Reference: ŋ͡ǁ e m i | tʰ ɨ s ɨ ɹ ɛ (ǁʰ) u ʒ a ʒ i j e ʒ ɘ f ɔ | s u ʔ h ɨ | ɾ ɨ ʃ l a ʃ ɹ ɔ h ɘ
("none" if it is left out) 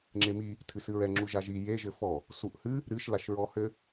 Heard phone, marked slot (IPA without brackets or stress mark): ŋ͡ǁ